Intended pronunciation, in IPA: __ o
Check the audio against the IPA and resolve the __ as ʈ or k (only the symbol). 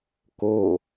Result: k